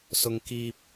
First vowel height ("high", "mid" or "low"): high